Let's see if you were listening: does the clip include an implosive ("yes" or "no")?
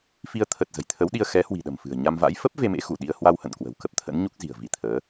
yes